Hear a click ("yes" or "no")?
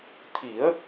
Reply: no